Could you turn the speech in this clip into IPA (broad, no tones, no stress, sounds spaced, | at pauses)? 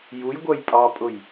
j u j ɡʷ ɜ j pʼ ɑ pʼ ʊ j